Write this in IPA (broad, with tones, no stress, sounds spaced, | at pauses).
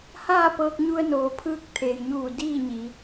h aː˥˨ p ɤː˧ k̚ ɲ u˧ ə̯ n oː˩˧ pʰ ɯː˧ k̚ t̪ʰ eː˩ j ɲ uː˧˩ d iː˥˨ ɲ i˩˧